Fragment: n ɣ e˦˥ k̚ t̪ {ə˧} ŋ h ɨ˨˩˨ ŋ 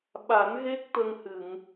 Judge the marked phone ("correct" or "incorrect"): correct